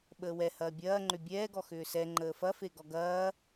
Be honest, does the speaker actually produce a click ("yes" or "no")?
yes